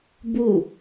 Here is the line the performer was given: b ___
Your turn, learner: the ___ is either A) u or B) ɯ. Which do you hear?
A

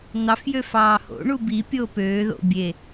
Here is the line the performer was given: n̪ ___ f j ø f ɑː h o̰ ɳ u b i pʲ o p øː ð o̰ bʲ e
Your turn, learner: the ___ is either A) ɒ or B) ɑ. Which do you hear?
B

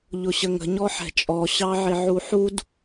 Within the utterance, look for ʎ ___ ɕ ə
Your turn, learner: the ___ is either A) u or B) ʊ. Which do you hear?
B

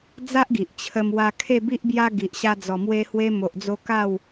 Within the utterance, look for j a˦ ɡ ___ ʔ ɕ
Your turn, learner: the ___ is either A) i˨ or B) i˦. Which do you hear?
A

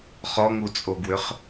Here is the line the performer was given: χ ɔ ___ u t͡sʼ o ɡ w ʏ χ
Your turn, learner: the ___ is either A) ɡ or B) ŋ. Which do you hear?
B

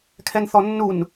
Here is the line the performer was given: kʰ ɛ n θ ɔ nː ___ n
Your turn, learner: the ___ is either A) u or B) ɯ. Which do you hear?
A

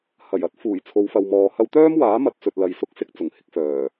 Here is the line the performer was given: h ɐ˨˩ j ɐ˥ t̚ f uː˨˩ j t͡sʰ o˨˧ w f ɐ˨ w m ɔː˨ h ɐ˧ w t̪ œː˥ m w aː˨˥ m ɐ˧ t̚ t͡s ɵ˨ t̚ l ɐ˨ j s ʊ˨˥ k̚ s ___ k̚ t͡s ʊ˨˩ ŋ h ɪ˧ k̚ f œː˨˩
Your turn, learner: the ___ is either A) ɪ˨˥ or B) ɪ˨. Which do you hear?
B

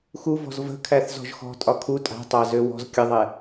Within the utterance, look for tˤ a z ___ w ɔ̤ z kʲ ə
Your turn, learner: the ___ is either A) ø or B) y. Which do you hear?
A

